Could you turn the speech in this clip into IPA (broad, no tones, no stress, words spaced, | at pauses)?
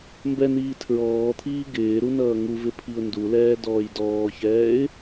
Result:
mbɛniː tʰɹɔːt̪ʰiː ɡɪːɾu nʌːŋuvɪ pʰiʊ̯ndulɛː dɔːjdɔːçɛːɪ̯